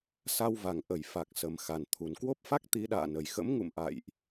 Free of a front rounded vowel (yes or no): yes